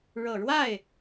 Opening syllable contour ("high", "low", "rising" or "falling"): low